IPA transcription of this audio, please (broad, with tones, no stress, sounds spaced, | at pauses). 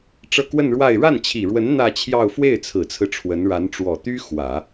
ʈ͡ʂ ɤ˥˧ k w ə˥˧ n ɻ w a˥˧ ɪ̯ ɻ a˥˩ n t͡ɕʰ i˨˩ ɻ w ə˧˥ n n̪ ä˥˧ t͡ɕʰ j ɑ˥˧ ʊ̯ f w e˥˩ ɪ̯ t͡sʰ ɹ̩˨˩ t͡sʰ ɹ̩˦ ʈ͡ʂʰ w ə˧˥ n ɻ a˧˥ n ʈ͡ʂ w ɔ˨˩ t̪ y˥ x w ä˨˩˦